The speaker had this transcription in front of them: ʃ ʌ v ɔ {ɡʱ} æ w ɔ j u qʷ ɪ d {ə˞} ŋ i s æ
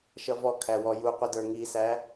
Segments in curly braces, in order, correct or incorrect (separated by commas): incorrect, correct